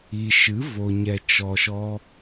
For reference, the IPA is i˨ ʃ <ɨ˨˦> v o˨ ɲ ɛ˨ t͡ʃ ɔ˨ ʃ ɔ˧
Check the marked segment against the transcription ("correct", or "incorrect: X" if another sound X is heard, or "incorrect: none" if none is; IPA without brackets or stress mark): correct